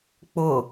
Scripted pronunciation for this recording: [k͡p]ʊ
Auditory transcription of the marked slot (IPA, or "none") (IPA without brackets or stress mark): k͡p